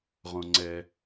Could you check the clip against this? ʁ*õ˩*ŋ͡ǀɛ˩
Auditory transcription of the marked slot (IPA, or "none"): õ˩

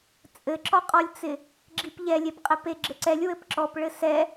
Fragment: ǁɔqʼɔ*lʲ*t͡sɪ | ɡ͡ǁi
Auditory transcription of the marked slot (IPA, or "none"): lʲ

